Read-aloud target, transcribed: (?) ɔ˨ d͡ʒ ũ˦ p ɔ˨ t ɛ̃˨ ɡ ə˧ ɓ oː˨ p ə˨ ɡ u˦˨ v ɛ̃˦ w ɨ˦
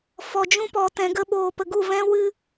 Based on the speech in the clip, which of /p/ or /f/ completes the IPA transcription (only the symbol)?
f